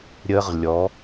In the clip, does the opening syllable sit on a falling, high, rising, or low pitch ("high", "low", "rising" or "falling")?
high